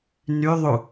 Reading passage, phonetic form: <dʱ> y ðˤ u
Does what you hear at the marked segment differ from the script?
yes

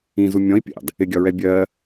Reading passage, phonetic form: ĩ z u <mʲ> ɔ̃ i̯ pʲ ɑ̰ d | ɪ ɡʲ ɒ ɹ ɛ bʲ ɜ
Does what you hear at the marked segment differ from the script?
no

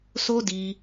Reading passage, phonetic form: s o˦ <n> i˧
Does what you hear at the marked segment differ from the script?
yes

